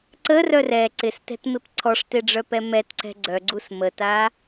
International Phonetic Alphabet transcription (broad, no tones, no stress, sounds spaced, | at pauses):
ǀ ə r œ r ɛ ǀ ɪ s t ɛ̤ t m ɪ p ǀʰ ɔ ʂ t e ɖ͡ʐ œ p ɛ m ɛ t ǀ ɛ̤ ɡ͡ǀ œ ɡ͡ǀ u s m ə t a